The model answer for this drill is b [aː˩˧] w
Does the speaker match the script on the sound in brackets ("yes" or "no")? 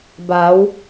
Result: yes